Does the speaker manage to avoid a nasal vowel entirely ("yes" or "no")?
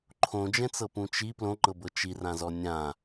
no